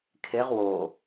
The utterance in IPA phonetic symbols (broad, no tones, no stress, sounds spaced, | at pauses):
kʰ e ʁ w o